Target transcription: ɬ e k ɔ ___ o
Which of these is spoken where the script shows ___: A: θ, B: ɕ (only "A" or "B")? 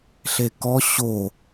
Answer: B